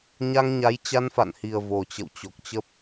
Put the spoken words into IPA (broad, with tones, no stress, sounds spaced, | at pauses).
ɲ a˧ ŋ ɲ a˨˦ j t͡ɕ a˧ n f a̰˧˨ n h i˨˩ ə̯ v o˨˩ t͡ɕ ə̰˧˨ w t͡ɕ o˨˩ k̚ t͡ɕ ə˦˥ p̚